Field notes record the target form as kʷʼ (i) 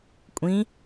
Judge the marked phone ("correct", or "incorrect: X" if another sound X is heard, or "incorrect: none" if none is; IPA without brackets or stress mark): incorrect: ĩ